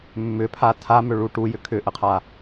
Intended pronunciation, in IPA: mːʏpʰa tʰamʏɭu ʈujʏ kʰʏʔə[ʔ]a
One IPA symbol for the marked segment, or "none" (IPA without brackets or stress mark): qʰ